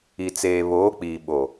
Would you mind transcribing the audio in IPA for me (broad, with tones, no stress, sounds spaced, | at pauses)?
i˨ t͡s eː˨ β oː˨˦ k͡p iː˨ ɓ o˨